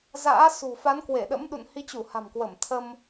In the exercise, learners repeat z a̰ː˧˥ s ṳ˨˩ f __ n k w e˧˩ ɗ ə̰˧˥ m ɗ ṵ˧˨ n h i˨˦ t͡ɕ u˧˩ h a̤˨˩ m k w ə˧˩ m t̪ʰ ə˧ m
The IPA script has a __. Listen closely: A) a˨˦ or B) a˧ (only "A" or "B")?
A